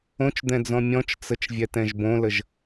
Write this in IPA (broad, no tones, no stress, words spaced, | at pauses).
õt͡ʃd̪ɛ̃d͡zɔ̃ mʲɔ̃t͡ʃt͡sət͡ʃ vʲɛtɛ̃ʒbõləʒ